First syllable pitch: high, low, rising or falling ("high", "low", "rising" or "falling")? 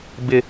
low